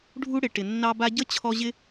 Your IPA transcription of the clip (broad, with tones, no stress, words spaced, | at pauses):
ɖʱu˦ɽɪ˨ ʈɪ˨nːɑ˦ba˦ ɟə˦ t͡ɕʰɔ˦ʑɪ˦